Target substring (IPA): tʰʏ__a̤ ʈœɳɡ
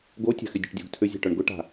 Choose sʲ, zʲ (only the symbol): zʲ